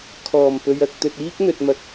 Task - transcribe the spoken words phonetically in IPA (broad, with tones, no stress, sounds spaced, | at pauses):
kʰ ɔː˨˩ m p ɵ˨ ɥ ɐ˨ k̚ t̪ ɵ˨ t̚ iː˥ k̚ n̪ ɵ˨ t̚ m ɐ˨ k̚